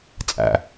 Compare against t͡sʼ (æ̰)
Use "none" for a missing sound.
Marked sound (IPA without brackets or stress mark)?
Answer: æ̰